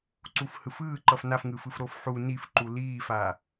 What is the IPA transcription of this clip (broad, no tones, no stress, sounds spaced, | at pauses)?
ǀ u f h ɯ f ɯː ǃ ʌ f n a f ŋ ɯ f ɯ f ɾ o f ħ u n i f ǃ u l iː f a